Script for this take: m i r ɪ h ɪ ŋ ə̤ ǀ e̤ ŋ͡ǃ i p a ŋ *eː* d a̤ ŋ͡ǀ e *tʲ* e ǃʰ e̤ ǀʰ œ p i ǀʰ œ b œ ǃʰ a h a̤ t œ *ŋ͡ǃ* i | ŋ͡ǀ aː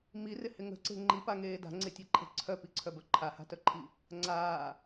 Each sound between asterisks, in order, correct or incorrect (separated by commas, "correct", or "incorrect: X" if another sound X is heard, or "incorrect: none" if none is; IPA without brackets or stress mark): correct, correct, incorrect: ǃʰ